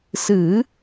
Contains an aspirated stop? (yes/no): no